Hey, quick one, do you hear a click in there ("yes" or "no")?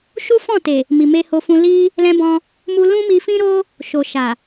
no